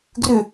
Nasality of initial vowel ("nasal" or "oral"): oral